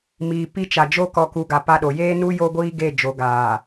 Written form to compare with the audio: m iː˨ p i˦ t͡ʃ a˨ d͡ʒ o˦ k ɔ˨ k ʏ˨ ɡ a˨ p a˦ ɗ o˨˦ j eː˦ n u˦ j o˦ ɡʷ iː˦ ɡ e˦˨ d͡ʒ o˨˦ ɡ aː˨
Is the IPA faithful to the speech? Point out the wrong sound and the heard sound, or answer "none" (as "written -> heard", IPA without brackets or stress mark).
ʏ˨ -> u˨